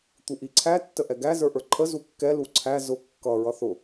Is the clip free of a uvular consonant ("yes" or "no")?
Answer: yes